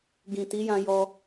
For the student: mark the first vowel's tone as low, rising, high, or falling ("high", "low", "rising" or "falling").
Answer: low